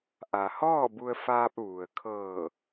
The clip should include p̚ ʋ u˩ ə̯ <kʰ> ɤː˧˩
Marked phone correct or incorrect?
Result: correct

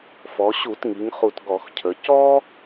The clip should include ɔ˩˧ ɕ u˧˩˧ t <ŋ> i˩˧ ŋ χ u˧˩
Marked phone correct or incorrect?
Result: correct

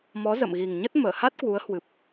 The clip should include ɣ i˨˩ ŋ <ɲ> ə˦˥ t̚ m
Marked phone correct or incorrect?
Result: correct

